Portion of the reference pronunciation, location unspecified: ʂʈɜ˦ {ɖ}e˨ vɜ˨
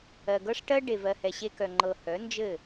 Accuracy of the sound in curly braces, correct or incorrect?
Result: correct